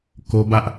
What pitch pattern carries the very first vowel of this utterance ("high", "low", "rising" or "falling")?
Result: high